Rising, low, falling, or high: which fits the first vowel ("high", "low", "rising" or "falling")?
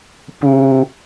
high